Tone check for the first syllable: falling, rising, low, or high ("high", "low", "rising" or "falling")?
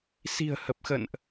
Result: low